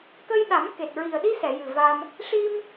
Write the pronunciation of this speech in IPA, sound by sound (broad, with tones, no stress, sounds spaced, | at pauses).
k ə˧ j ɗ a˨˩˦ m k e˨˩ t̚ ɹ i˨˩ ə̯ ɗ i˧ s ɛ˨˩˨ j ɨ˨˩ v a˧ m | ʂ i˧ m